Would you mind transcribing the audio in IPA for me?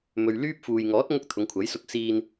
m ɵ˨ ɥ l yː˥ p̚ f uː˨ j ŋ ɔː˨˥ t̚ ŋ ʊ˥ k̚ t̪ʰ ʊ˨˧ ŋ kʷʰ ɐ˨˥ j s ʊ˧ k̚ s iː˧ n

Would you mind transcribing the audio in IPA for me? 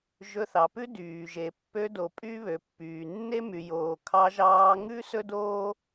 ʒ ɵ˧ θ ɑ˨ p ʉ˦ d yː˨ ʒ e˨ pː ø˧ d o˨ pʼ y˦ β ø˨ pː yː˨ nː e˦ m y˨ j oː˨ kʰ ɑ˧ ʒ ɑː˧ ŋ ʉ˦ s ɵ˦ d oː˦

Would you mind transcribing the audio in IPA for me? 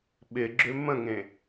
ɓ ɪ ɡ͡ǁ ʏ m ə̃ ŋ ẽ

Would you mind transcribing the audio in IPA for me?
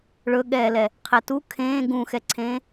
ɭ ɵ ɠ ɛː l ɛ | qʰ ɛ t u kʰ ẽː ɡ ũ x ɛ ǀʰ ẽː

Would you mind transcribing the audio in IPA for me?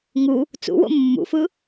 ŋ u | t͡s ṵ w o̰ mː ṵ f ɯ

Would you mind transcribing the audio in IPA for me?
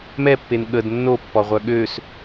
m ɛ pː e n ɠ ə d nː o pː ɔ ʁʷ œ ɠ ø s

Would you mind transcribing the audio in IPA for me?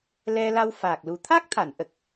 l ɛ˧ l a˧ w f a˨˩ k̚ l u˨˩ t̪ʰ a˦˥ k̚ t̪ʰ a˨˩˨ n ʔ ə˨˩ k̚

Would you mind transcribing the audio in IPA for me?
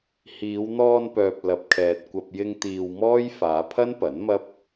h iː˨˧ w n̪ ɔː˧ n p œː˨ p̚ l ɐ˨ p̚ kʰ ɛː˨ t̚ kʷ ɐ˧ p̚ j ɪ˧ ŋ t̪ iː˧ w m ɔː˥ j f aː˨˧ pʰ ɐ˥ n p ɐ˨˥ n m ɐ˥ p̚

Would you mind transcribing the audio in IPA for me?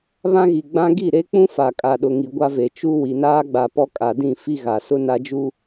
β ã˦ ɣ i˨ ɡ͡b ã˦ ɡ i˦˨ ɾ e˦ k͡p ũ˦ f a˨ kʼ a˨ ɗ ʊ˨ ŋ i˨ ɡʷ a˦ v e˨ t͡ʃ u˦ w i˨ n aː˦ ɡ͡b a˨ p ɔ˦ kʼ a˨ d ĩ˦˨ f i˦ ɣ a˨ s ʊ˦ n a˦ d͡ʒ u˦

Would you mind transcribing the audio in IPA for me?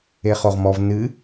e χ o ʁ m ɔ v n ɨ

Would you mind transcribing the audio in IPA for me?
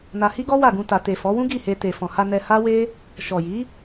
n a˧ h i˦ ɡ ɔ˦ w a˦˨ ɡ ũ˧ t a˨ t e˨ f ɔ˨˦ w ũ˦ ɡ i˦˨ h e˧ t e˨ f ɔ̃˨ h a˧ n ɛ˧ h a˦ w e˦ | ʃ ɔ˨ j i˨˦

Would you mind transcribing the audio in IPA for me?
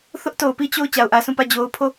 θ ʊ˦ ʔ t o˨ ʊ̯ p i˦˨ t͡ɕ o˦˨ ʊ̯ t͡ɕ a˨ ʊ̯ ʔ ä˨ s ũ˦˨ p ä˦˨ d͡ʑ o˨ ʊ̯ pʰ o˦˨

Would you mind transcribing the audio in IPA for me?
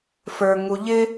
f ə˞ ŋ u ʎ ɪ

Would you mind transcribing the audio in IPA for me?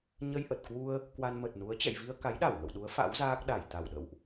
ɲ ə˧ j ʔ ə˨˩ t̚ k w u˧ ə̯ | k w a˧ n m ə˨˩ t̚ n u˨˦ ə̯ t͡ɕ ɛ̰˧˨ j v i˧ ə̯ k a˨˦ j ɗ a˧˩ w ŋ ə̰˧˨ w ɗ u˨˦ ə̯ f a̰˧˥ w z aː˦˥ k̚ ɗ a˧˩ j t̪ a˧˩ w ɗ ə̰˧˨ w ʔ

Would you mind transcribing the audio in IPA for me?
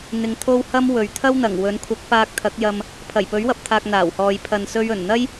n̪ ɪ˧ ŋ t̪ʰ o˥ w h ɐ˥ m w ɵ˨ ɥ t̪ʰ ɐ˥ w n̪ ɐ˨˩ ŋ w ɵ˨˥ n kʷʰ ɐ˨˥ k̚ p aː˧ k̚ t̪ʰ ɐ˨˥ k̚ j ɐ˧ m | pʰ ɐ˨˩ j p ɵ˨˥ ɥ w ɐ˨ p̚ t̪ʰ aː˨ k̚ n̪ aː˨˩ w h ɔː˨ j pʰ ɐ˨ n s ɵ˧ ɥ ɵ˨˩ n n̪ ɐ˥ j

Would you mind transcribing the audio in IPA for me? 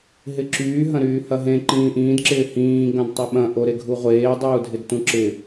ɦ ɪ ǁ yː ɦ ɐ̃ ɾ yː h ɐ ɦ ẽ ǃ ĩː ʔ ĩː d ǁ ɪː h ĩː ɡ ɐ̃ d tˤ ɐ ɓ ɐ̃ ʔ o ɾ e ɡʱ u ʁʷ eː dˤ uː dʱ ɪ d t ũ ǁ ɪ

